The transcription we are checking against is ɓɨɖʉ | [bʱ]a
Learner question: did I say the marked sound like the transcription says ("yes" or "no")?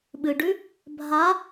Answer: yes